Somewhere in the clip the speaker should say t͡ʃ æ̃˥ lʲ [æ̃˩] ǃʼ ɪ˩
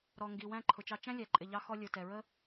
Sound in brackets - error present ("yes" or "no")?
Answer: yes